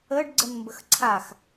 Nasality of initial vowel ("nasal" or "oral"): oral